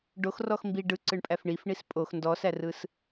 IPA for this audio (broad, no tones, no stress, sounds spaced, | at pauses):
ɖ o x r ɔ x m b i ɖ ɯ ǀ ɯ ɳ pʼ æ f ɳ i f ɳ i s pʼ o x n d ɔ s æ r ɯ s